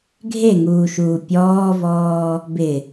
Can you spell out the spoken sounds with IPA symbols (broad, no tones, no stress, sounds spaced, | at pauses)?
ɡʱ e ŋ uː ʃ uː pʲ ɔː v ɔː | b ɪ